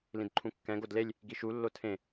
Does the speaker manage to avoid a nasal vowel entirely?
no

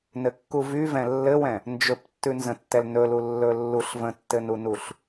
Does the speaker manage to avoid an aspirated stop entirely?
yes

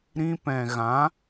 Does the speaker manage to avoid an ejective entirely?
yes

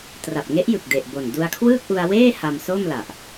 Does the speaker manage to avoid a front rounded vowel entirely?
yes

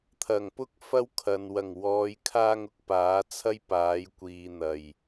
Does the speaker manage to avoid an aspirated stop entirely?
no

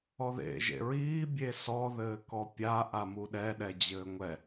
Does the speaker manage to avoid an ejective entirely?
yes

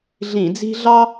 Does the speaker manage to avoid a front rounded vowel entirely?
yes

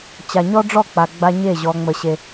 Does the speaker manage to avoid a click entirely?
yes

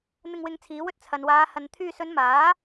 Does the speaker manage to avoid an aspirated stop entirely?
no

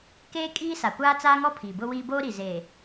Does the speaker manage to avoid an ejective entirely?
no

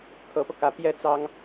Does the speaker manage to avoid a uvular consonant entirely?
yes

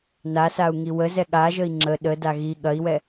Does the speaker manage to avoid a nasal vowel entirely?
yes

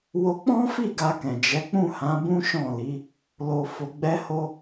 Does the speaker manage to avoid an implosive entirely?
yes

